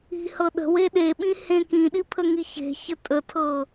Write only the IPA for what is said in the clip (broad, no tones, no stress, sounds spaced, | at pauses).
i̤ h ɤ ɗ ə̤ w e ɗ e ɓ ĩ h ẽ k ĩ ɗ i pʰ ə ŋ i ç e̤ ç ə tʼ ə tʰ ɤ